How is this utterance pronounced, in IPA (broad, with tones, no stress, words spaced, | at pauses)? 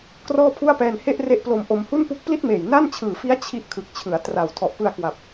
krɔː˥˩pʰu˥˩a̯pɛː˧n he˥˩ʔre˦˥ʔplo˧m ʔo˧m hu˥˩npu˦˥k̚ pli˥˩t̚meː˨˩j na˥˩nt͡ɕʰɯː˨˩fi˦˥a̯ t͡ɕʰi˥˩ʔ kʰɯ˨˩k̚t͡ɕʰɯ˩˦a̯tra˨˩w tʰɔ˨˩ʔpɯ˧a̯kwa˨˩p̚